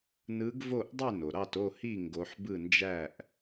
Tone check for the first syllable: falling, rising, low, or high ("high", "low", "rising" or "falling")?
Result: rising